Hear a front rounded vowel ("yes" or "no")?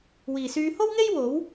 yes